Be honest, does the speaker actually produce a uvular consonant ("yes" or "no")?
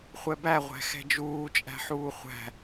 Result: yes